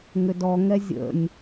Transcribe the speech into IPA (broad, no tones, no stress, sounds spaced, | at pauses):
ŋ ʏ d ɔ ŋ ɛ zʲ ə̰ nʲ